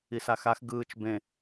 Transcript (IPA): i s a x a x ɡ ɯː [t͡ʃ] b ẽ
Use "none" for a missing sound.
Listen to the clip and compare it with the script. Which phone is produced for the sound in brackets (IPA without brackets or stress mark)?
t͡ʃ